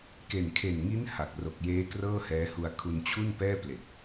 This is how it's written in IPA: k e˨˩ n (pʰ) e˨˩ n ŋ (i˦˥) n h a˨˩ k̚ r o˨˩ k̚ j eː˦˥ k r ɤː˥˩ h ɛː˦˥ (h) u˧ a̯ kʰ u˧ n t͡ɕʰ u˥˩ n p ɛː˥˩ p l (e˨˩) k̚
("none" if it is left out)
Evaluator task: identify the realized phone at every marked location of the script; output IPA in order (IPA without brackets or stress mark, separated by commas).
kʰ, i˦˥, h, e˨˩